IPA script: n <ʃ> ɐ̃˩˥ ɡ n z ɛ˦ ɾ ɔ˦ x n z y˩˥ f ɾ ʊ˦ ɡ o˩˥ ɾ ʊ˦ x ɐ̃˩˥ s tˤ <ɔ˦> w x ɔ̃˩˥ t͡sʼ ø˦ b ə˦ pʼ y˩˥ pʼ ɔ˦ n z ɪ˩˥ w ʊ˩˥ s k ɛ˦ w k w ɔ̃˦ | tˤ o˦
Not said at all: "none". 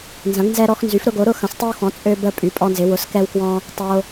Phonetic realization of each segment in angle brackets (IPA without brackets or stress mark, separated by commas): z, ə˦